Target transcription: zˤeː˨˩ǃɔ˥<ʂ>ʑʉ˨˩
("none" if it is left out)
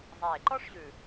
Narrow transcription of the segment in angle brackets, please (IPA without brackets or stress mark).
ʂ